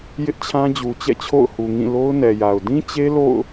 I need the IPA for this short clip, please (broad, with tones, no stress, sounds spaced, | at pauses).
j ɪ˦ ʔ t͡ɕʰ ã˦ d͡ʑ u˨ t͡ɕ ɛ̰˦˨ t͡ɕʰ o̰˦˨ ʊ̯ h u˨ ŋ ĩ˦˨ l o˦ ʊ̯ n ɛ˨ j a˨ ʊ̯ d ĩ˦ t͡ɕ e˦ l o̰˦˨ ʊ̯